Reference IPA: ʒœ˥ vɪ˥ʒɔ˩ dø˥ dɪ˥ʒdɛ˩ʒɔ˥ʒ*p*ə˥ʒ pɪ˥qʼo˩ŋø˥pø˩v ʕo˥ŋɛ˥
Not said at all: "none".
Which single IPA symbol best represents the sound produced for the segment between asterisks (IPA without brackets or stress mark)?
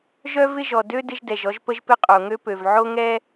p